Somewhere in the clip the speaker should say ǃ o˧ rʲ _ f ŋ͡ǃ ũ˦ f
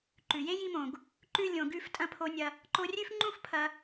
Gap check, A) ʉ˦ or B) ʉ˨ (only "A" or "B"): A